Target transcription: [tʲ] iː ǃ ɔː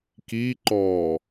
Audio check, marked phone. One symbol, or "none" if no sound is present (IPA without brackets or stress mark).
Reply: k